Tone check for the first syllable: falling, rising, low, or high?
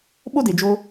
high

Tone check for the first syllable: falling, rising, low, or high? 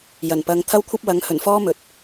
low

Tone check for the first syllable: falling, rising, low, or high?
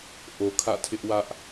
low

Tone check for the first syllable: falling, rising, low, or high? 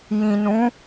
low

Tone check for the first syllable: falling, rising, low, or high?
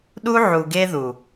high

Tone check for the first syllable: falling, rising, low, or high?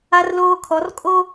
high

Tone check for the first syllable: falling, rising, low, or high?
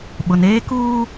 low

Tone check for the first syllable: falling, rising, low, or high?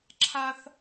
high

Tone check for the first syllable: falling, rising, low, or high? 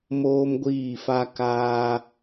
high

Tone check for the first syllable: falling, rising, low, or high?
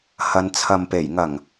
low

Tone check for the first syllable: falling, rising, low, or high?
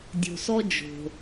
low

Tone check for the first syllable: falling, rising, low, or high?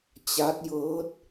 rising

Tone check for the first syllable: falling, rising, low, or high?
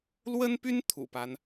high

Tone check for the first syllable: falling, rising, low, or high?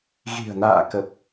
low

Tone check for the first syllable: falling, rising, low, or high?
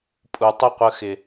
low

